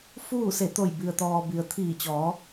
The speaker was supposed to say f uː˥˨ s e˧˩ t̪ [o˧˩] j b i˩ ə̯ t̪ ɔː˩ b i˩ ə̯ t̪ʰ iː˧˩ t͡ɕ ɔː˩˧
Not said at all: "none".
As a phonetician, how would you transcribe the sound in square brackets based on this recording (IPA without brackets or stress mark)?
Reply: o˧˩